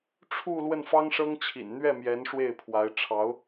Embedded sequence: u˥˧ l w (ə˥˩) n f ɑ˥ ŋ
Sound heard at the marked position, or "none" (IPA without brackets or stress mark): ə˥˩